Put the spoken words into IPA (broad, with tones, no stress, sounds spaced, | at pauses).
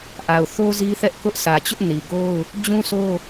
ʔ a˨ ʊ̯ θ o˦ z i˦ θ ɛ˦ ʔ k ʊ˦ ʔ sʰ ä˨ t͡ɕ ʊ˦ ʔ n i˨ ɡ o˦ ʊ̯ | d͡ʑ ũ˦ sʰ o˦